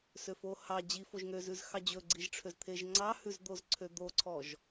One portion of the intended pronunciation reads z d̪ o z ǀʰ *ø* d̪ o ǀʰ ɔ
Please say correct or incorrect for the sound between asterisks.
correct